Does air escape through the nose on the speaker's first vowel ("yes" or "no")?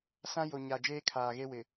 yes